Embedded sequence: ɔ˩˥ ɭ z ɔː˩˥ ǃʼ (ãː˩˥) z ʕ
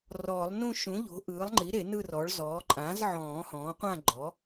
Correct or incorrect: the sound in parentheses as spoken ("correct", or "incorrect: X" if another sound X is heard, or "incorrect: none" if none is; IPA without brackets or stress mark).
correct